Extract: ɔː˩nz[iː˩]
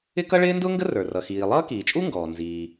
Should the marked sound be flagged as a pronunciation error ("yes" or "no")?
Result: no